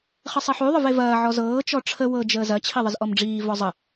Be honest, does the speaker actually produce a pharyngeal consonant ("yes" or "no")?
yes